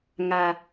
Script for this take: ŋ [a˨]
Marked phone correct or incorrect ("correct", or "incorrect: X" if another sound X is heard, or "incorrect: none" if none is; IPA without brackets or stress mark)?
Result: correct